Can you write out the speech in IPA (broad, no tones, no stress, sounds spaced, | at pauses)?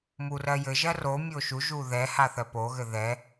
m u r ɜ j ɘ ʒ ɜ r o mʲ o ʃ u ʒ u ð ɛ h a θ ɜ p o ɣ ɘ ð ɛ